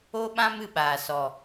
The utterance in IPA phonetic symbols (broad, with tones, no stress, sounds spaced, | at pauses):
o˦ ɓ ã˦ m ɨ˨ ɓ aː˨ s ɔ˨